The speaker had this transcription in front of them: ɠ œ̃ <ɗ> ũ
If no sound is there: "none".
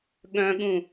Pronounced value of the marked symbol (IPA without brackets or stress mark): ɠ